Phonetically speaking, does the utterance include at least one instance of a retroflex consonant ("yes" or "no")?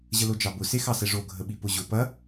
yes